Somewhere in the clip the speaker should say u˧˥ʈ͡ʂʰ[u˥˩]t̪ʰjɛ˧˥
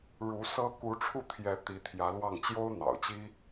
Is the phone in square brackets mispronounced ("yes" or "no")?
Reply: no